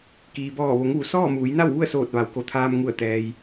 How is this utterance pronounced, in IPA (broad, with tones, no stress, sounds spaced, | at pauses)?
k iː˩ b ɔː˧˩ ʋ o˩˧ ŋ ʋ u˩ s ɔː˥˨ m uː˩˧ j n a˥˨ w ʋ u˥˨ ə̯ s oː˧˩ t̚ ʋ a˩˧ w k o˩˧ t̪ʰ aː˧ m ŋ u˧˩ ə̯ t̪ ɛː˩ j